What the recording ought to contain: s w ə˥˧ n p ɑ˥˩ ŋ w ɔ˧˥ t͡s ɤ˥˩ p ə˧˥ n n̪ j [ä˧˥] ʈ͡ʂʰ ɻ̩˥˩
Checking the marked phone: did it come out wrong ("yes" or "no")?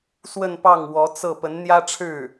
yes